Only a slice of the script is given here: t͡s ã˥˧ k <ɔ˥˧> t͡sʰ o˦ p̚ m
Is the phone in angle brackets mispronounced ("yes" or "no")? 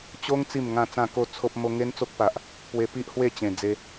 yes